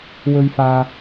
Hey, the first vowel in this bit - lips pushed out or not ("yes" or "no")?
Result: yes